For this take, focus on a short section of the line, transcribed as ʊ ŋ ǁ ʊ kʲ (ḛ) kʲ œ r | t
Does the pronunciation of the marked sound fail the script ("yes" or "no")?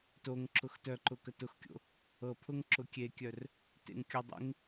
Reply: yes